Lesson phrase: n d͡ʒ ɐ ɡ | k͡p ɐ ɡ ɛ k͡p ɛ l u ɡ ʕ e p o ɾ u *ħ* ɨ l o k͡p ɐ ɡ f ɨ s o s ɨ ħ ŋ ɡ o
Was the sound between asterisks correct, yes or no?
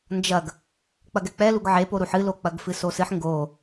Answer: yes